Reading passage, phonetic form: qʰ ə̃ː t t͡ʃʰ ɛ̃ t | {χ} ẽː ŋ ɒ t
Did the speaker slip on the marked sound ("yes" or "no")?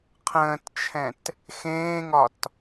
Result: yes